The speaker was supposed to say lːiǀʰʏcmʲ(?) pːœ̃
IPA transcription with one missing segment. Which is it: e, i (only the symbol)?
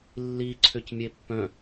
e